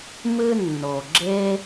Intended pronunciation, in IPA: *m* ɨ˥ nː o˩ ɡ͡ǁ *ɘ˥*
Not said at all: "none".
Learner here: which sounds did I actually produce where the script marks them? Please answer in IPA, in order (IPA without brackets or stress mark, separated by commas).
m, e˥